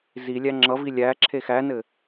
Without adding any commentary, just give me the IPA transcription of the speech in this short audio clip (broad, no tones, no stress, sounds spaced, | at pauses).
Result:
z i lʲ æ ŋ͡ǁ ʌ v i lʲ æ ǁʰ e x æ n ɘ